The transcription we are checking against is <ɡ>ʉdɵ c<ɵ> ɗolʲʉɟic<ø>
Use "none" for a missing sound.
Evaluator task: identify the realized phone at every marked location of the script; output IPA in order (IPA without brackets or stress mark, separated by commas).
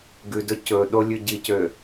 ɡ, ɵ, ø